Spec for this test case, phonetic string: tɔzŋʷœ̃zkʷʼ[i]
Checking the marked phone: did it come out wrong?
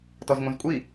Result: no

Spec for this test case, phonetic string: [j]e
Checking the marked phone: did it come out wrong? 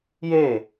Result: no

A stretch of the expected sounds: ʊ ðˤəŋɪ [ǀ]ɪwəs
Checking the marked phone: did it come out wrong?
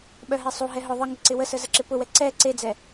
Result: no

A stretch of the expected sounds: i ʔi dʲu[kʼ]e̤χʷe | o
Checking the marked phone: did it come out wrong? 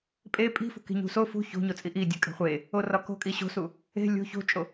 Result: no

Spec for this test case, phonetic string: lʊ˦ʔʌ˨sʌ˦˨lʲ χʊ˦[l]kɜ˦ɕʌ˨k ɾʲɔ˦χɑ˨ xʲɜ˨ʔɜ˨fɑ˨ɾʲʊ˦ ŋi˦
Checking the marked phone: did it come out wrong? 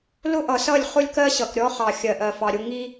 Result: yes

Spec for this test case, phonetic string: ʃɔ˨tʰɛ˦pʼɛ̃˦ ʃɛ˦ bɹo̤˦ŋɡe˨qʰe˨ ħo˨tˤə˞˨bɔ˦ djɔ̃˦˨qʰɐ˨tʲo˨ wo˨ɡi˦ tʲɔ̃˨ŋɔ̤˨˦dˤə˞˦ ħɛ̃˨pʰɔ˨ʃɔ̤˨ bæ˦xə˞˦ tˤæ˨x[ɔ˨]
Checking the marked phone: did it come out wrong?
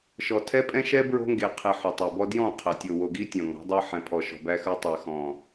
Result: yes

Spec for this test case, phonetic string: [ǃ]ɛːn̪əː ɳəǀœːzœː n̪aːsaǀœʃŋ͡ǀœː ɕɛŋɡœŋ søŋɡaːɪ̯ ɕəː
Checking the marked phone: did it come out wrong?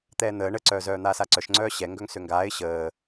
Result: yes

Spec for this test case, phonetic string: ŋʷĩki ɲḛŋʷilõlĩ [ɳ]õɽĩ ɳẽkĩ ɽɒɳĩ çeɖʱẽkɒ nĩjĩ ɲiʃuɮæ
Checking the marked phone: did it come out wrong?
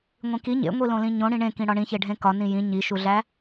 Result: yes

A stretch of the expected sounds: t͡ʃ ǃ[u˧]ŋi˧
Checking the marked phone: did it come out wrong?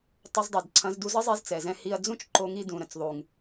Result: yes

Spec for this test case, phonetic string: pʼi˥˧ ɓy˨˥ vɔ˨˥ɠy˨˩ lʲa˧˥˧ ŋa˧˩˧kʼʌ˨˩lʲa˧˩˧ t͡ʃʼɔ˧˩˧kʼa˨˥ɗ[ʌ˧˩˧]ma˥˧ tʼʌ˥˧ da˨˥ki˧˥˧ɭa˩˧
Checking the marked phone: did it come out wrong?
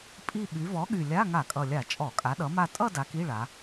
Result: yes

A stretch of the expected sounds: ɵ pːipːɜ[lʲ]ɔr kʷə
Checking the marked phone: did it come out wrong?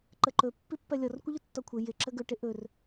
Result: no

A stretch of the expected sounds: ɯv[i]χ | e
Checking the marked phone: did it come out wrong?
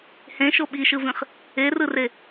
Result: yes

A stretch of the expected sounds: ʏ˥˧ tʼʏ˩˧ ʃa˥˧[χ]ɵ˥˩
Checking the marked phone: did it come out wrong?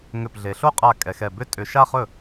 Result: no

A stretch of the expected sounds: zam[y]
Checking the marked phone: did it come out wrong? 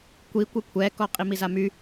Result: no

